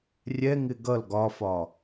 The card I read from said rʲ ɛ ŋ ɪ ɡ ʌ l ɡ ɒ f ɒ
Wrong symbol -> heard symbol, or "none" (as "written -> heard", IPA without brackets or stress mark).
none